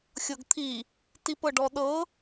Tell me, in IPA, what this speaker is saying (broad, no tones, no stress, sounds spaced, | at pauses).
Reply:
xʲ ɤ ɡ t̪ʰ i | t i p ɤ ɖ ɔ ɗ ɤ